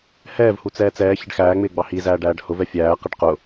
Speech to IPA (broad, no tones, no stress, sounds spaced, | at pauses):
h ɛː v h u t͡s ɛː t͡s ɛː ç ɪ ɖ x æː ŋ͡m ɪː ɡ͡b ɑ h i z æː ɖ æː ɖ h ʊ v ɛ fʲ æː q ɪ ɖ q ʊ